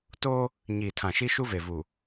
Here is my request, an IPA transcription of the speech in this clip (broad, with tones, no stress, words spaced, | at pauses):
toː˦ | ɲiː˨tʰã˨ ʃi˦ ʃu˦ve˨ vu˨